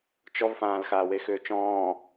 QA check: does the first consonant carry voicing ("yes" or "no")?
no